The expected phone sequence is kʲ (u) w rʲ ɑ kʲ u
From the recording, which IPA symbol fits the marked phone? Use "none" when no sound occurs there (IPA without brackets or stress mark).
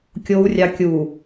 o